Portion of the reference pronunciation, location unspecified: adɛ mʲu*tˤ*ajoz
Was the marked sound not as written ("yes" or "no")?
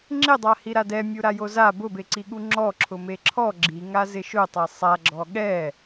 yes